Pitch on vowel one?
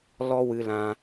high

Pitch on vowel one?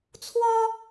high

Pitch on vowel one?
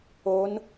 rising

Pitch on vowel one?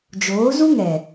rising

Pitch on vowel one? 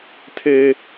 high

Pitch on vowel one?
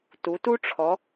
rising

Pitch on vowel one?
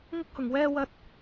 high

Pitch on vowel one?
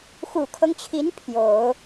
low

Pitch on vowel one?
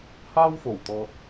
high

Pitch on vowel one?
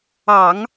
low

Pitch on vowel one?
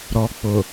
low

